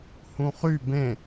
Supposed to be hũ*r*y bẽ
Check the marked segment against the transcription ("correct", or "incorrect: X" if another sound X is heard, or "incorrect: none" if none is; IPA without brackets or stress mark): incorrect: χ